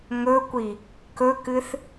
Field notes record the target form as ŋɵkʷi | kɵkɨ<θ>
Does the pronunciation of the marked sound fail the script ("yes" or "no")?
no